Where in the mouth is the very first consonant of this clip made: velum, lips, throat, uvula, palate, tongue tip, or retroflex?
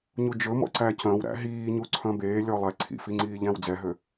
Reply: palate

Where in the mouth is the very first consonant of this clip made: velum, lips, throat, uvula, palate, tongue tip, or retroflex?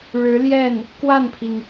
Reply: retroflex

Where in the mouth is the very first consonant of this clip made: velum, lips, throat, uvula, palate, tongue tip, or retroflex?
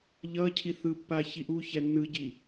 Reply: palate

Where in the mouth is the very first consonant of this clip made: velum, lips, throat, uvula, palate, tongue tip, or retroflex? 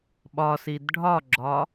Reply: lips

